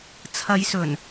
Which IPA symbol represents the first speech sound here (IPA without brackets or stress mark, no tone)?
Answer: t͡sʰ